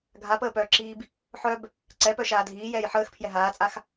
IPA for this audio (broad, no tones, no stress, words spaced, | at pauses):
ɡʱapəːpœːǁiːb | ħœb | ǀɛpœʃaː dʱiːjɛːj ħəːxpʰjɛ ɦaːt͡sʼax